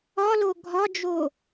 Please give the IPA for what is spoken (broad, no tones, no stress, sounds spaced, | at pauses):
ɒ l o ɡʱ ɒ d͡ʒ o